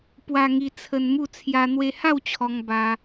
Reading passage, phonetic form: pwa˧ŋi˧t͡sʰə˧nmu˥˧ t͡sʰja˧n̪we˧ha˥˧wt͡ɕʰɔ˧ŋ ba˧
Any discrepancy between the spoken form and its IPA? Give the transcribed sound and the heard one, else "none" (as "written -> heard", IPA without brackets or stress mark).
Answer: none